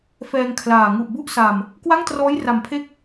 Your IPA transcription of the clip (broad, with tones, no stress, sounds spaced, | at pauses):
f ɛː˧ ŋ kʰ l aː˨˩ ŋ u˨˩ ʔ b u˦˥ ʔ s a˨˩ m | k w a˥˩ ŋ t r ɔː˦˥ j r a˨˩ m pʰ e˦˥ k̚